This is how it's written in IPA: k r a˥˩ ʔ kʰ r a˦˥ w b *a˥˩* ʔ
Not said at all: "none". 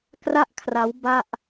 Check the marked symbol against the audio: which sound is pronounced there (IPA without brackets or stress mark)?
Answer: a˥˩